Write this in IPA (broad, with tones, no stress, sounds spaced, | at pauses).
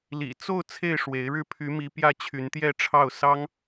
l ḭ˨˩ t͡s o˥˧ ʊ̯ t͡sʰ e˥˩ ɪ̯ ʂ w e˧˥ ɪ̯ ɻ ɻ̩˥˩ pʰ y˧˥ m i˧˥ p j ä˥˩ t͡ɕʰ y˧˥ n t̪ j ɛ˥˧ ʈ͡ʂʰ ɑ˥˩ ʊ̯ s ɑ˥ ŋ